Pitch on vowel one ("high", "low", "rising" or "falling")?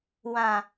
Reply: low